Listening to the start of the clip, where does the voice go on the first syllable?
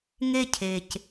high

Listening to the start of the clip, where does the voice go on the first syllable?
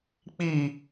falling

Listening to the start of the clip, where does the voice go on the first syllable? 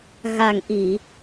low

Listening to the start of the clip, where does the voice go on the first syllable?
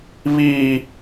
high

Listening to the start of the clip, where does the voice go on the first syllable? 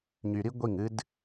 low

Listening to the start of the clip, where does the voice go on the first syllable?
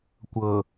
low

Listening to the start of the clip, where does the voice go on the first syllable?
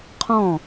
falling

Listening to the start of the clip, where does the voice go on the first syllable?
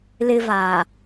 high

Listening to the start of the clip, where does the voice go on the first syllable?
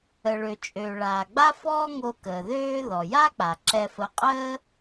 low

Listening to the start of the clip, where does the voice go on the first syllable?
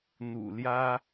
low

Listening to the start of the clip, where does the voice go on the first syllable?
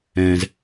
low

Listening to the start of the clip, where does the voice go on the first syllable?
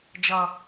low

